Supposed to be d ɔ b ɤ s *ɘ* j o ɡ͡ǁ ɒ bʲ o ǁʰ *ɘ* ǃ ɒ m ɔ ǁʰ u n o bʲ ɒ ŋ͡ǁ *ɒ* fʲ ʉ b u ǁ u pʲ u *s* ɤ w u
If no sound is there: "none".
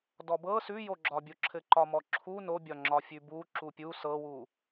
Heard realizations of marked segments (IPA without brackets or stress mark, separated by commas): ʉ, ɘ, ɒ, s